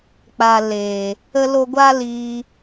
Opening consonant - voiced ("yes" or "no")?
no